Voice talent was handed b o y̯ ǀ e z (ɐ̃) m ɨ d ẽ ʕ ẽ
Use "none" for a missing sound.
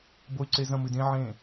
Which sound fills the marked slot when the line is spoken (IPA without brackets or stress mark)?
ɐ̃